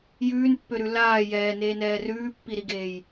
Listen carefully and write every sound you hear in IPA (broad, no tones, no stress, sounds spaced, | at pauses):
j ʉː n pː ø ɾ ʉ l aː j ɛː n eː n ɛː r ʉː pː i ɾ i ɡ eː j